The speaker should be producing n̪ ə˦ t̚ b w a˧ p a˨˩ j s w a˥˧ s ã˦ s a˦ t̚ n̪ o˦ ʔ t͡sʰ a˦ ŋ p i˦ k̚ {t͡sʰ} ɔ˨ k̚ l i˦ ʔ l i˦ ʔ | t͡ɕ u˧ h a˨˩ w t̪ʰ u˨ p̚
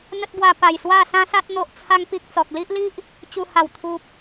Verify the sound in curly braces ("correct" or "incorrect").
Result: incorrect